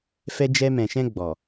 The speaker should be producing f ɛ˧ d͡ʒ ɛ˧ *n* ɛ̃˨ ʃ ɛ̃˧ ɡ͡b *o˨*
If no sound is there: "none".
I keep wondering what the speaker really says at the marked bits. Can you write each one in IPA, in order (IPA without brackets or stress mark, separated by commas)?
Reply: m, ɔ˨